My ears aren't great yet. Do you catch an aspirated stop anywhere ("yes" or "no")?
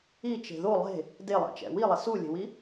no